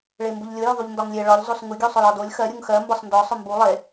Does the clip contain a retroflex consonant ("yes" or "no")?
yes